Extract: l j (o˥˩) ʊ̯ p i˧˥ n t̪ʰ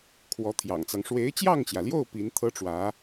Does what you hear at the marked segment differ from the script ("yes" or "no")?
no